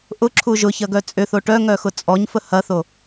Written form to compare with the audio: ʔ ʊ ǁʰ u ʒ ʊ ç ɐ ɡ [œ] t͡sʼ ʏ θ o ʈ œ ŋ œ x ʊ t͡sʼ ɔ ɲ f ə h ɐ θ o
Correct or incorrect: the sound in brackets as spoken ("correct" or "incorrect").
correct